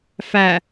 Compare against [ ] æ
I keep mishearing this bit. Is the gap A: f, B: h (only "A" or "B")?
A